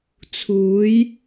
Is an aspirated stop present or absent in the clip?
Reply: present